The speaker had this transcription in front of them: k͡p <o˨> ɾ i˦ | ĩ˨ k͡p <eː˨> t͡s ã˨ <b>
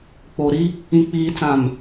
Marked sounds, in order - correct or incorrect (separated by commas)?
correct, incorrect, incorrect